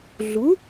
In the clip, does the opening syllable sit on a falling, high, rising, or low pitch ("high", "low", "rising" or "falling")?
rising